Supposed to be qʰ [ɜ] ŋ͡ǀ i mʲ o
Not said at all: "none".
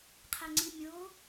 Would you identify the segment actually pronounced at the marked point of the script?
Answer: æ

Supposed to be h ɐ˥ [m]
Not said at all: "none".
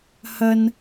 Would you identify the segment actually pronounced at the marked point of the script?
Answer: n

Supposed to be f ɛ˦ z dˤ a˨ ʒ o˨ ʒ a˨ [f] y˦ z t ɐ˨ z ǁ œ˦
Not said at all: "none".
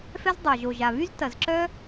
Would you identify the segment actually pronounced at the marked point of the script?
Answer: β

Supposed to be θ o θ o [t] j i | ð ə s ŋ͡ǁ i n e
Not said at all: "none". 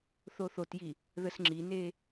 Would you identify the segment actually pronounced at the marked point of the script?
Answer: t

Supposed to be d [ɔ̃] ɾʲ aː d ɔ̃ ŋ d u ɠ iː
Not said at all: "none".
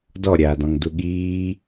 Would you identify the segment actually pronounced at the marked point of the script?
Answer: ɔ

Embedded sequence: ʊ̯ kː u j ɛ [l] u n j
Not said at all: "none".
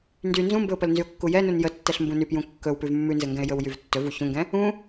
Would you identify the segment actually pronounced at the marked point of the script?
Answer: n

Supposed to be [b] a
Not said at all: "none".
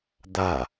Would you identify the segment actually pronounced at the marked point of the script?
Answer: d̪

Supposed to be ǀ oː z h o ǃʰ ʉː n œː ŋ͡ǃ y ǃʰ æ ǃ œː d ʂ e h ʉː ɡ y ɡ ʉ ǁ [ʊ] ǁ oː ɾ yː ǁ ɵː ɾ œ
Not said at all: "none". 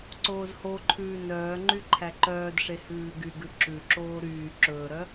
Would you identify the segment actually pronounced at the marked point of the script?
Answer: ʉ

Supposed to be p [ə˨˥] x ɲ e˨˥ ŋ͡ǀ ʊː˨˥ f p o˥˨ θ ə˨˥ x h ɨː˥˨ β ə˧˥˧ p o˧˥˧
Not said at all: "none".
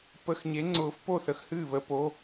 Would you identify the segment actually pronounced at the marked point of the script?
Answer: ə˧˥˧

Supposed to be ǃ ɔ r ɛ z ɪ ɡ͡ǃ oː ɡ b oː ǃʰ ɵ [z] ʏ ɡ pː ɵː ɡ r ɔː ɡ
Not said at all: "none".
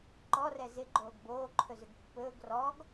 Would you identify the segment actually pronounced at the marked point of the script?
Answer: z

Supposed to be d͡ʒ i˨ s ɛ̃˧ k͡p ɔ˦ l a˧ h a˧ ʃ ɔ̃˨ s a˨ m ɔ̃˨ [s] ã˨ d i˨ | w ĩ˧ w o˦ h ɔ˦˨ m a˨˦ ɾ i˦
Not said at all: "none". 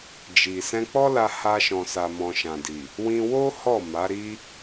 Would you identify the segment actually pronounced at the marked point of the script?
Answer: ʃ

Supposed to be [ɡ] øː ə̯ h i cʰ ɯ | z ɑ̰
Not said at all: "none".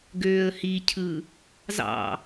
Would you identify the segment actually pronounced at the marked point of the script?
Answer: ɡ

